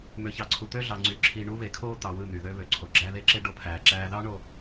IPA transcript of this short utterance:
m ø˨ ç ɑ˨ ǀʰ u˨ t̪ ø˦ ɮ ɑ˨ ŋ͡ǀ y˨ ǁʰ i˨ ɳ u˦ β e˨ kʰ oː˦ t̪ ɑ˨ w ɯ˦˨ n̪ y˨ ð ø˦ β ø˨ ǀʰ o˨ ɡ͡ǁ æ˦ ð e˦ ǁ e˦ ɖ o˦ pʰ æː˨ ǁ æː˦ ð ɑ˦ ɳ o˨

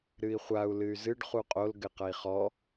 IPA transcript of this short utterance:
ɾ ɨ i̯ χʷ a u̯ l ɨ y̯ z ɨ ɖ χ u qʼ o l ɡ ɘ q ɐ i̯ χ ɔ

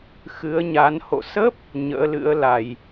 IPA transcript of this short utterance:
x ɨ˨˦ ə̯ ɲ a˨˦ n h o̰˧˨ s ə˦˥ p̚ | ɲ ə̰ː˧˥ l ɨ̰˧˥ ə̯ l a˧˩˨ j

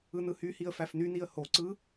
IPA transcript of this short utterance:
ɯ n ɯ h y h i ə̯ f æ f n y n i ə̯ h o ǀ ɯ

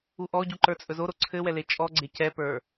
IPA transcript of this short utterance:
u ʔ ɔ ɟ u ǃ ə˞ t͡sʼ ɵ z o ɾ o ǀʰ ɘ w ɛ l e t͡ʃʼ ɔ ɡ͡ǀ e c ɛ p ə˞

